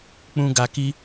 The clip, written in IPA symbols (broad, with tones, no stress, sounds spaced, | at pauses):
k͡p ũ˦ ɡ a˧ k i˦